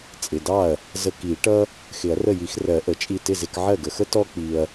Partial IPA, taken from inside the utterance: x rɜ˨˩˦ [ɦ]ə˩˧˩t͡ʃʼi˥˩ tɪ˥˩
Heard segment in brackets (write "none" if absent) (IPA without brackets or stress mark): ʔ